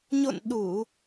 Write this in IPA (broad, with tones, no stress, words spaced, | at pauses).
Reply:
ɲo̰˧˨n ɗu˧˩˨